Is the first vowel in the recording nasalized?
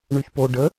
no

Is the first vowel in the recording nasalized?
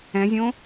yes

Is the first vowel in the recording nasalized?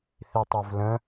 no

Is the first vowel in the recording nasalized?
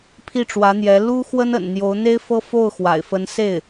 no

